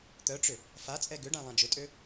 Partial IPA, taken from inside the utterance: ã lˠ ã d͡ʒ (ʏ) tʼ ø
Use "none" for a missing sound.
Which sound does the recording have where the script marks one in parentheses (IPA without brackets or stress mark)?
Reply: ʏ